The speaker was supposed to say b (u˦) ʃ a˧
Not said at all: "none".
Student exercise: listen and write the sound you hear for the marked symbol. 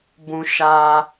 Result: ũ˦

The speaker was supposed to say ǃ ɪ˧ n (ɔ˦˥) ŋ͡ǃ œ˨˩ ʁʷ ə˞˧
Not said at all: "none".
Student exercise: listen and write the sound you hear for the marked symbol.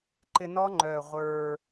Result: ɔ˦˥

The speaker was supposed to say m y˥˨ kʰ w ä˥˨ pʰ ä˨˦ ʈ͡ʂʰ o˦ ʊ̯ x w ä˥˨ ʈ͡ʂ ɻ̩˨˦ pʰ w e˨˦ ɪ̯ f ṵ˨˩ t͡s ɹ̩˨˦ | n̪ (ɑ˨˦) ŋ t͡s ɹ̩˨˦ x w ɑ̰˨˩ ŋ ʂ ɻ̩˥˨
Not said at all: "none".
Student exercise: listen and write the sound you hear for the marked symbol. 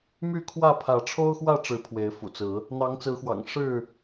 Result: ɑ˨˦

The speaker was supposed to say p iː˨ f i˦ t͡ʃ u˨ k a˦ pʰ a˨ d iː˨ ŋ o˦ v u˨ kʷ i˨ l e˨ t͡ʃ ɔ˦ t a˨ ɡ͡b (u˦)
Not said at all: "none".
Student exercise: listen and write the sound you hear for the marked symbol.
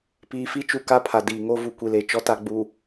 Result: u˨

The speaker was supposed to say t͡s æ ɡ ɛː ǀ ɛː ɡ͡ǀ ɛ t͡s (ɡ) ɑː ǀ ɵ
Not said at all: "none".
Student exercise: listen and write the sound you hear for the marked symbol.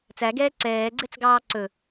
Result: ɡ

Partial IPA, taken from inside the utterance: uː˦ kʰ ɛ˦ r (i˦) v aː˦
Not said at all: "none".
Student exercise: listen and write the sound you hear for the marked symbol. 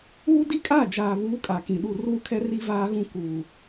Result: i˦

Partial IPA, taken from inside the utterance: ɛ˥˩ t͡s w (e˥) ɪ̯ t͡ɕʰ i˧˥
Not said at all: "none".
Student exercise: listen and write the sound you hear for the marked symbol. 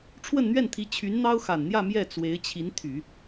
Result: e˧˥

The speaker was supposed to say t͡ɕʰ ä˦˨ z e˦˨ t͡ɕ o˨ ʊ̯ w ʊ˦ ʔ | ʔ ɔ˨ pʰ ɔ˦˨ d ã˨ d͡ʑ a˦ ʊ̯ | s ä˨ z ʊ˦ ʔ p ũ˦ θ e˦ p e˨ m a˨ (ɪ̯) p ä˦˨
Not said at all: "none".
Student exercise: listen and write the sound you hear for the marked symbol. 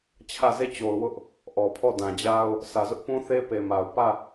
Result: ʊ̯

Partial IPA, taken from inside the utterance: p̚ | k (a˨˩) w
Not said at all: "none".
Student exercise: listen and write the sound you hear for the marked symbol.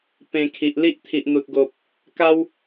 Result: a˦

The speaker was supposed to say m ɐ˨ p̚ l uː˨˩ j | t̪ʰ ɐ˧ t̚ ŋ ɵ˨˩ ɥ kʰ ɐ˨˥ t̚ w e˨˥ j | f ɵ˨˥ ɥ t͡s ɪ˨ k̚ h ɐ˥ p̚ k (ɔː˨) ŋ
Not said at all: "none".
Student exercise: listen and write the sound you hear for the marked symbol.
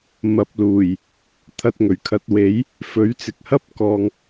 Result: ɔː˨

